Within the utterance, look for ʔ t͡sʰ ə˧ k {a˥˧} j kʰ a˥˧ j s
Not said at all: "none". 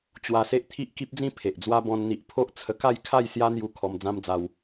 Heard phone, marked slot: a˥˧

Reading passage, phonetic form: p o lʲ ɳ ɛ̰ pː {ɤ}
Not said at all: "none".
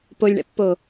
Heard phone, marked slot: o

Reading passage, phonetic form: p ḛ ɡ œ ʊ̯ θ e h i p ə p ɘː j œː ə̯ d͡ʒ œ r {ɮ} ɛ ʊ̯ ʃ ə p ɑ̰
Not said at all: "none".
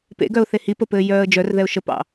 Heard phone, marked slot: ð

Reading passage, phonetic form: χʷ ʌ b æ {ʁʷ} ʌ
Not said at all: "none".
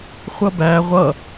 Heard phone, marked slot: ʁʷ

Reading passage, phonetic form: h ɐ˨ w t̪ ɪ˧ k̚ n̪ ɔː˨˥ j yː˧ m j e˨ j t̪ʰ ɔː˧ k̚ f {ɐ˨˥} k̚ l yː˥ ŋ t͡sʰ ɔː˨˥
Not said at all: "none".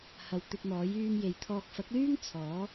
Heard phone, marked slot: ɐ˨˥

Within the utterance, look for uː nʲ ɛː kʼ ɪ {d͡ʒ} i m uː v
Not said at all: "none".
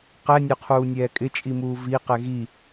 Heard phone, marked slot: t͡ʃʼ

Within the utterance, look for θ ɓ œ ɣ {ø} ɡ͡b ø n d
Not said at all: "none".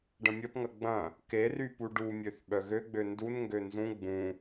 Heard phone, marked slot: ø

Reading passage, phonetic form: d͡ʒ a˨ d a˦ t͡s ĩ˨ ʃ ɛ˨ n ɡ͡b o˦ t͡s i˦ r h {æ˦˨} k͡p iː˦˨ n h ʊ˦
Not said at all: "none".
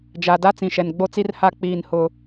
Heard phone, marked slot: a˦˨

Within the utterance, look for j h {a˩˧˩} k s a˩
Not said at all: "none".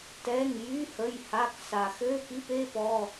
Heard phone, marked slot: a˩˧˩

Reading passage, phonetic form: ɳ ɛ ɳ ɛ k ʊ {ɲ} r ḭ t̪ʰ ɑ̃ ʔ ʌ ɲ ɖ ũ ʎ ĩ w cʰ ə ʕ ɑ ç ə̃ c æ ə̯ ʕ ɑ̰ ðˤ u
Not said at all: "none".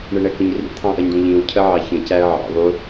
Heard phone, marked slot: ɲ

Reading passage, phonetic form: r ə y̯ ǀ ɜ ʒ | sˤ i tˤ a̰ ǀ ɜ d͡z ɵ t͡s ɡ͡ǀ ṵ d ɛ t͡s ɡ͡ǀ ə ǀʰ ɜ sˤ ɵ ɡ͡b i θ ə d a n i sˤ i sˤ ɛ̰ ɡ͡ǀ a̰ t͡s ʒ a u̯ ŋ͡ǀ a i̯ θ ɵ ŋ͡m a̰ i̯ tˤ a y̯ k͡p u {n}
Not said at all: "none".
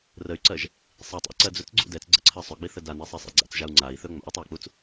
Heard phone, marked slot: t͡s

